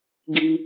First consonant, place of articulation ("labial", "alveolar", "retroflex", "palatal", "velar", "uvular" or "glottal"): velar